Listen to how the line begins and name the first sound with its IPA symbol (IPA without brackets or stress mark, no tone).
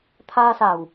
t̪ʰ